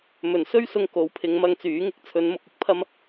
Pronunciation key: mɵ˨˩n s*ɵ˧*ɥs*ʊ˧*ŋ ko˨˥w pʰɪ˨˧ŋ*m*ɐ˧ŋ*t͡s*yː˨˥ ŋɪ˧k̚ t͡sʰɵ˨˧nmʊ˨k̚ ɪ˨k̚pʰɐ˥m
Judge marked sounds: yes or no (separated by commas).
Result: no, yes, yes, yes